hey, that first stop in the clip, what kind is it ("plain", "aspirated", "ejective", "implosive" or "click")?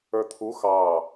aspirated